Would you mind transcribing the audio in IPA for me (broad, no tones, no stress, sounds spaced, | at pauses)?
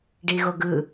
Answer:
ɖ i ɣ o ɡ ɯ